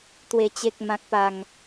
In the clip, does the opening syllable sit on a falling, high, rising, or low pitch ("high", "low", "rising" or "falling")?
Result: low